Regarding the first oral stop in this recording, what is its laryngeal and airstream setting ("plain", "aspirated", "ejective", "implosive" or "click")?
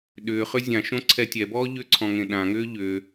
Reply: implosive